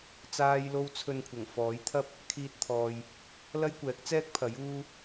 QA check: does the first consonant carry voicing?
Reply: no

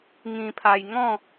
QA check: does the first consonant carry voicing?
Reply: yes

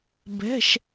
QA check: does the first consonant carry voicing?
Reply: yes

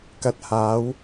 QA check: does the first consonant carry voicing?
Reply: no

